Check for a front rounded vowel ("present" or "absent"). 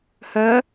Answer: present